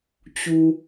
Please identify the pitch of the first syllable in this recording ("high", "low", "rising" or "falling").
low